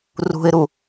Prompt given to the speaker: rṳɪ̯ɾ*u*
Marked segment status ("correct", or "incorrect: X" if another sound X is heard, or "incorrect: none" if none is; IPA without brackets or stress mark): correct